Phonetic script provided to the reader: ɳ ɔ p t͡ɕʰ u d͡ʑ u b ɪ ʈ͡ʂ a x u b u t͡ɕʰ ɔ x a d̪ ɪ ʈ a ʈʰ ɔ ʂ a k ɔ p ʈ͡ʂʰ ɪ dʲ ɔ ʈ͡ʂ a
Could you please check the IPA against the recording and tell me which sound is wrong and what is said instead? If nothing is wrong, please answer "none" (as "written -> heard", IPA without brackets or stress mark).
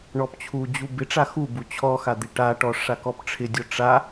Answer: ʈʰ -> ʈ